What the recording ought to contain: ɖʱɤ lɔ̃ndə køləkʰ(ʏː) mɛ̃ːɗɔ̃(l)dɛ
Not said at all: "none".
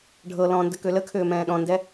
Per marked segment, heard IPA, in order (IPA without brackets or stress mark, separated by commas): ʏː, n